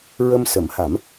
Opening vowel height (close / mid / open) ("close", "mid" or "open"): mid